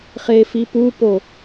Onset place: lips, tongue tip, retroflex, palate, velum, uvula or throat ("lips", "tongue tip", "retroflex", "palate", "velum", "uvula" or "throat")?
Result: uvula